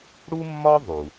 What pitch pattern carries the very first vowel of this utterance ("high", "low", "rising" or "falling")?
high